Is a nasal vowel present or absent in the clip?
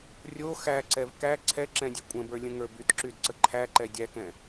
present